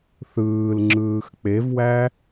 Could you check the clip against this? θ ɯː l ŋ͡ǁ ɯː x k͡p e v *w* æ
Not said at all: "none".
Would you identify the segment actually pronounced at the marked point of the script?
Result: w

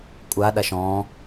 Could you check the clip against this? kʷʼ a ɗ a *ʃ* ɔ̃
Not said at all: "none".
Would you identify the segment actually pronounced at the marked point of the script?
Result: ʃ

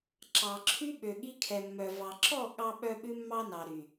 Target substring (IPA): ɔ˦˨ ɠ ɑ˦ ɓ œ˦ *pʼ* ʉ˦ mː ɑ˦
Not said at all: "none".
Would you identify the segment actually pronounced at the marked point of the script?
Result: ɓ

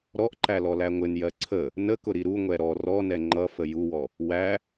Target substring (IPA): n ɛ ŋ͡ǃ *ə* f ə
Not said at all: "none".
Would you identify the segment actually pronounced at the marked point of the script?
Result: ʌ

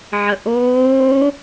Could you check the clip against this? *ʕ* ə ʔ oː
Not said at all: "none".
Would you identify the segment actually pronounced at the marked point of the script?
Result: ʕ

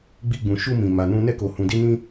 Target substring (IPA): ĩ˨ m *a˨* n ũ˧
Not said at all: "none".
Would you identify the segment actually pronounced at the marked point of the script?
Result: a˨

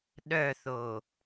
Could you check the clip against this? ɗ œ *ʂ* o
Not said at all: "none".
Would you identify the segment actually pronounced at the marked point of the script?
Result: θ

